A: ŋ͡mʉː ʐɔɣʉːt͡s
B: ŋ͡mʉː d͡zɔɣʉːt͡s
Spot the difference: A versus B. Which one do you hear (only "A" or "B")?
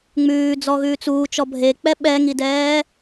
B